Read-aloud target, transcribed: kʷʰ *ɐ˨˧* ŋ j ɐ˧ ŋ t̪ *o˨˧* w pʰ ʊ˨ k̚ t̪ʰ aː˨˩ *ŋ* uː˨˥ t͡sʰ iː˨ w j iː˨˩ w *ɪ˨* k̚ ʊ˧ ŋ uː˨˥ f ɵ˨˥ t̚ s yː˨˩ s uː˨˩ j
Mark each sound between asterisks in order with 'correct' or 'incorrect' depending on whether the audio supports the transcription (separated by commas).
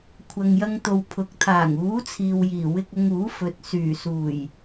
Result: incorrect, incorrect, correct, incorrect